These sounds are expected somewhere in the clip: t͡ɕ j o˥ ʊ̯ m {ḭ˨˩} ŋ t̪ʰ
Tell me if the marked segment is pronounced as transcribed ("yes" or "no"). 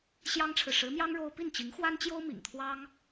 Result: yes